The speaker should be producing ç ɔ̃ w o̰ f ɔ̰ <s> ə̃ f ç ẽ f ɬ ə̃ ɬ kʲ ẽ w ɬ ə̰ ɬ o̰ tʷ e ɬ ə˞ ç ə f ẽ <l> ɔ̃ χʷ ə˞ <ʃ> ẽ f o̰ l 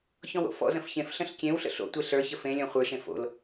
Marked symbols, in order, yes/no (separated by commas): no, no, yes